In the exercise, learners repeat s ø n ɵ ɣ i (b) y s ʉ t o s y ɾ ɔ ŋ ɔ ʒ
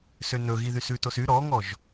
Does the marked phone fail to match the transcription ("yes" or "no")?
yes